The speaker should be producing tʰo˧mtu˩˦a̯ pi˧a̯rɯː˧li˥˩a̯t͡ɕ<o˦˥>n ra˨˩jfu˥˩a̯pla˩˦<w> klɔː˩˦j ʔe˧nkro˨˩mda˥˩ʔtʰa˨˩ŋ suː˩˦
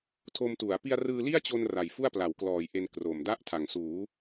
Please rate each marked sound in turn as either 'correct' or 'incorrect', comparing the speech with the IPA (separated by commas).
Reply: incorrect, correct